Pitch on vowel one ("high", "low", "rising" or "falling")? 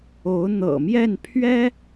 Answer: rising